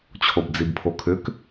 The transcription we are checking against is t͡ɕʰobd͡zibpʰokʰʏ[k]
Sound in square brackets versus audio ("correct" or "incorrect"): correct